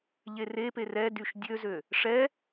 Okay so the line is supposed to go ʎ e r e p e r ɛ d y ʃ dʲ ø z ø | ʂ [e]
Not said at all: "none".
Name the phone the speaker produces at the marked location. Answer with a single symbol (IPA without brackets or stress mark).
ɛ